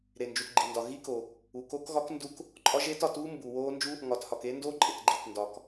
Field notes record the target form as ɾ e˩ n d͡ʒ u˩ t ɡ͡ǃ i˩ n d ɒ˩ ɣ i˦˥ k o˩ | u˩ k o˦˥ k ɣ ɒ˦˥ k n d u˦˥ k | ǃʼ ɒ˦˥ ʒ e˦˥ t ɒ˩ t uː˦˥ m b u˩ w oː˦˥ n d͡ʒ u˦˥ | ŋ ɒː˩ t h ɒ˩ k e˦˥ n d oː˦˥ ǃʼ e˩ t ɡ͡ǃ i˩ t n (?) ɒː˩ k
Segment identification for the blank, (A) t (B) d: B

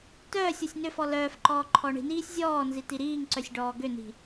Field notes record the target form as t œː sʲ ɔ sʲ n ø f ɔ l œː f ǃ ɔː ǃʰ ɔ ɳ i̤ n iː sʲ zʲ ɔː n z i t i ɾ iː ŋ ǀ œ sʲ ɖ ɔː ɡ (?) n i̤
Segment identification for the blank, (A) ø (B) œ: A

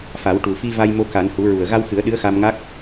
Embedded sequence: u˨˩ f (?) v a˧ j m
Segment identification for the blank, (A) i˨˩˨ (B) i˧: B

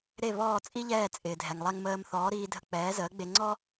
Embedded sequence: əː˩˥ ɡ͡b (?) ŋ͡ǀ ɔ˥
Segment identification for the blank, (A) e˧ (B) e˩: A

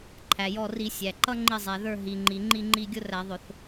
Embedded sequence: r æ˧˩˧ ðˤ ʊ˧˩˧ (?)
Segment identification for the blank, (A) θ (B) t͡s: A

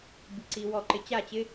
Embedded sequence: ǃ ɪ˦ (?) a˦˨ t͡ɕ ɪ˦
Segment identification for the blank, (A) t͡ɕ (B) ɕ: A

